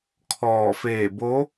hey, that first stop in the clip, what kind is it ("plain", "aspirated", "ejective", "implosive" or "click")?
aspirated